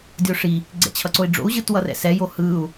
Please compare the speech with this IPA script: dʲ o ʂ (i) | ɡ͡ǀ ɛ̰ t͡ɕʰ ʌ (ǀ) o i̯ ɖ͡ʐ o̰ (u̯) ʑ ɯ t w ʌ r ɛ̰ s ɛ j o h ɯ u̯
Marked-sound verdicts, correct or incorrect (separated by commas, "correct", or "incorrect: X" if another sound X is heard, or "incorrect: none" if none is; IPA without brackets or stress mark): correct, correct, correct